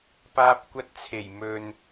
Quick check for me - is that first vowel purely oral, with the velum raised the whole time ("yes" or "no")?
yes